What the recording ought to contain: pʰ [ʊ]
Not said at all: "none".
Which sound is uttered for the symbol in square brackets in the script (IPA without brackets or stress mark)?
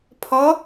ɔ